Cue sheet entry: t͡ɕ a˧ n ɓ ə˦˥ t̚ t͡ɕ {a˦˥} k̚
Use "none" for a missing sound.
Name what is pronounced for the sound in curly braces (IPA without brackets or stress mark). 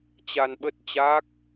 a˦˥